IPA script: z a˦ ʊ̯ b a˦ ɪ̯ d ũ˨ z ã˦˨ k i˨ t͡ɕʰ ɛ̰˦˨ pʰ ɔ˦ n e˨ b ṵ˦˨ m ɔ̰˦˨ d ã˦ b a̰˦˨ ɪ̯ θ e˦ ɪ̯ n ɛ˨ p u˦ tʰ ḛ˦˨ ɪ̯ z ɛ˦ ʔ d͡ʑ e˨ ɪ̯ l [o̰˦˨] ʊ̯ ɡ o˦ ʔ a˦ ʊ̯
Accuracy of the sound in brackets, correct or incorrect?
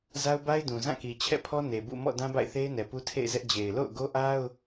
correct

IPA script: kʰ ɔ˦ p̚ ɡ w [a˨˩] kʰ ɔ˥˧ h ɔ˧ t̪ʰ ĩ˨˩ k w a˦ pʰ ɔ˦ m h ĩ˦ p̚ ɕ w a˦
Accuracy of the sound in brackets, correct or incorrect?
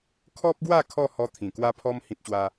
incorrect: a˥˧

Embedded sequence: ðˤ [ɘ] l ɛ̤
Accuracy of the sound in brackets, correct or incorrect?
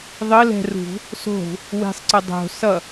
correct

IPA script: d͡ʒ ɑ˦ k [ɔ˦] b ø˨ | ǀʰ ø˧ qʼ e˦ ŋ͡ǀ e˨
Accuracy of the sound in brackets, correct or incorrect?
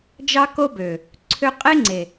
incorrect: o˦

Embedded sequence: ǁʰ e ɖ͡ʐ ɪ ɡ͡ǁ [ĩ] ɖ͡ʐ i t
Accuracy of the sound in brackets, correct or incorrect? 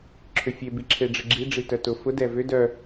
incorrect: i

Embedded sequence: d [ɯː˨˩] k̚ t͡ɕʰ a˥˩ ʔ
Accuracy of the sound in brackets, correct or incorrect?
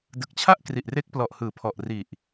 incorrect: ɯ˨˩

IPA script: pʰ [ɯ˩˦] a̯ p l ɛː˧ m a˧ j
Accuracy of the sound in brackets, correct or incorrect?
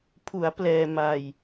incorrect: u˩˦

